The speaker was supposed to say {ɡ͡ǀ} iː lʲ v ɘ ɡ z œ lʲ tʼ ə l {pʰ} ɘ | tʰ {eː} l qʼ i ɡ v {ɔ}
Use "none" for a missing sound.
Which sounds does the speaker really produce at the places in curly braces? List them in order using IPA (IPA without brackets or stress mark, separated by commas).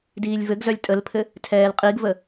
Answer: d, pʰ, ɛː, ə